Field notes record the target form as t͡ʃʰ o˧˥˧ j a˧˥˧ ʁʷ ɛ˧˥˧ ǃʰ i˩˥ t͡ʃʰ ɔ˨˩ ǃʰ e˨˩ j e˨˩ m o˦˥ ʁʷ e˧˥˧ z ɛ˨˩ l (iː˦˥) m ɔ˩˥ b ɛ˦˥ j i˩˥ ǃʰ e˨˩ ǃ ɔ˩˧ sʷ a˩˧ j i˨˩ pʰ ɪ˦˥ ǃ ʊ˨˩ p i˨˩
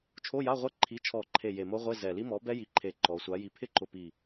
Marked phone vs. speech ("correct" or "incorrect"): incorrect